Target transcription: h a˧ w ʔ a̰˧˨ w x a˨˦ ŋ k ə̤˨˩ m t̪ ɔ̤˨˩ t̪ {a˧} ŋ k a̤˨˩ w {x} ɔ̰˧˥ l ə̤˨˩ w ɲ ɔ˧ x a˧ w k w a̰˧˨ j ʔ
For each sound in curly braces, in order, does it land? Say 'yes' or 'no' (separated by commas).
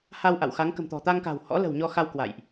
yes, no